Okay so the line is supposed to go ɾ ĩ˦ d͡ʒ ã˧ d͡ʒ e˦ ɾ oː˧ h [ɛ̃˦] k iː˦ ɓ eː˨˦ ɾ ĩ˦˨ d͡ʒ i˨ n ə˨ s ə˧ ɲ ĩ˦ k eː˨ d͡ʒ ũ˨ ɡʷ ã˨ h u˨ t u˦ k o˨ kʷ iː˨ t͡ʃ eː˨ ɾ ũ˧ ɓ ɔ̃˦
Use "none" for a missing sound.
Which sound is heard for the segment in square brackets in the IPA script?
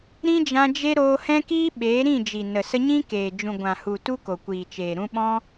ɛ̃˦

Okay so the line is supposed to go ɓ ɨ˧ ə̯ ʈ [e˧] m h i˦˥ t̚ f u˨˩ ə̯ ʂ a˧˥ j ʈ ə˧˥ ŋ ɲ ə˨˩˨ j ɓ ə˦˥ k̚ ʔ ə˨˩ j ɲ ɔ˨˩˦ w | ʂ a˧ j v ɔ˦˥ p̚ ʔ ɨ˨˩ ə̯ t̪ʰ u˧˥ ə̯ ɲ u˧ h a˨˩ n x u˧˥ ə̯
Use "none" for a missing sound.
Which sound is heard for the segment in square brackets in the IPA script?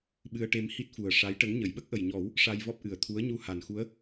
e˧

